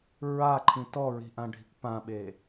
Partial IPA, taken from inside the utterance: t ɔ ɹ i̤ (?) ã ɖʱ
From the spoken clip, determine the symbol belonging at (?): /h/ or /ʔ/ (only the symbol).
ʔ